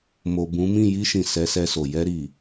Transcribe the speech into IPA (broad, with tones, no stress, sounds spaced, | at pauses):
m o˨ b ũ˨˦ m ĩ˦˨ j i˧ ʃ ĩ˨ s ɛ˨˦ s ɛ˧ s o˨ j ɛ˧ ɾ i˨